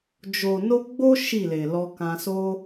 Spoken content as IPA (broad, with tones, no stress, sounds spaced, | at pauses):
d͡ʒ o˨ n o˧ ɡ͡b o˦ ʃ i˦˨ l e˨ l ɔ˧ k ã˧ s o˧